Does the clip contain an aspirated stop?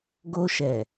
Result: no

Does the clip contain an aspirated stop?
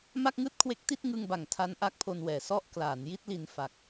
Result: yes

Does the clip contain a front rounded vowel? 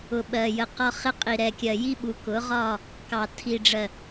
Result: no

